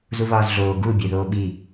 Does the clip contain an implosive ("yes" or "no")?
yes